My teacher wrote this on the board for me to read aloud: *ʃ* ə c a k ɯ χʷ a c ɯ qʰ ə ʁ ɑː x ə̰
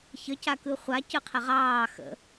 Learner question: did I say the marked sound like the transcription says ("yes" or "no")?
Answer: no